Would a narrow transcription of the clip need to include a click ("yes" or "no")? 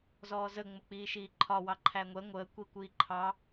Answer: yes